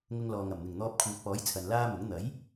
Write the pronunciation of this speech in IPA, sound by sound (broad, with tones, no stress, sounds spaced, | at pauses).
ŋ ʊ˧ ŋ l ɔː˨ ŋ ɐ˨˩ m n̪ ɪ˨˩ ŋ n̪ ɔː˧ p̚ kʰ uː˨ t̚ p ɔː˨˥ j t͡sʰ ɐ˨ n l aː˥ m ʊ˨˥ ŋ n̪ ɐ˨˥ j